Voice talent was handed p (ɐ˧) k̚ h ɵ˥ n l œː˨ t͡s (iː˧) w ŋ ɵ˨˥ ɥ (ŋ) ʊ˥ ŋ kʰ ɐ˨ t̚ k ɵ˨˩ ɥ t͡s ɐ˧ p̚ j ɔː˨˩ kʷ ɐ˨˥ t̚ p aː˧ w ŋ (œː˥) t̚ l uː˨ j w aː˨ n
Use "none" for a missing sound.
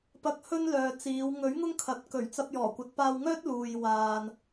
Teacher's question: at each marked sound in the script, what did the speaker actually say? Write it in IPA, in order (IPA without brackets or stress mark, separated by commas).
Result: ɐ˧, iː˨˧, ŋ, œː˥